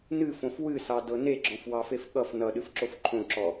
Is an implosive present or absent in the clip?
present